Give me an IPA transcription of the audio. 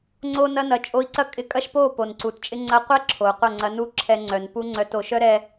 ŋ͡ǀ o˧ n ɐ˧ n ɐ˨ t͡ʃʼ o˧ i̯ ǀ ɐ˦ kʼ ɪ˧ kʼ ɐ˦ ʃ p o˦˨ p o˨ n ǀ u˨ t t͡ʃʼ ɪ˦ ŋ͡ǀ ɐ˧ qʷ ɛ˦ ǁʰ o˨ u̯ qʷ ɐ˦˨ ŋ͡ǀ ɐ˧ n u˦˨ ǁʰ ɛ˧ ŋ͡ǀ œ˨ n p u˦ ŋ͡ǀ œ˧ t o˨ ʃ œ˦ ɾ ɛ˧

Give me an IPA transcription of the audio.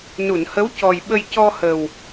n u˨˩˨ n h ə˧˥ w c ɔ˨˩ j ɓ ə˧ j c ɔ˧ h ə˨˩ w

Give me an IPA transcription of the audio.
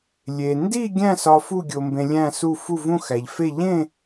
lʲ e˧ n d i˥˧ ɡʲ æ̃˥˧ s ɒ˧ f u˥˧ ɡʲ o˧ m b ẽ˧ lʲ æ̃˥˧ s u˥˧ f u˥˧ v ũ˥˧ x æ˧ ʎ f e˥˧ ʎ ẽ˥˧

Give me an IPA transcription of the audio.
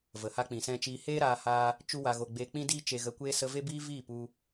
v ə˨ h a˧ k͡p ĩ˨ s ɛ̃˧ t͡ʃ iː˧ h eː˦ ɾ aː˧ h aː˧ | t͡ʃ u˦ w a˧ ɣ o˧ ɡ͡b eː˧ k͡p ĩ˦ d iː˦ t͡ʃ e˧ ɣ ə˧ kʷ eː˦ s ə˧ v e˦ b iː˦ v iː˦˨ p u˧

